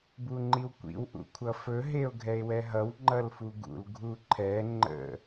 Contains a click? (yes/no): yes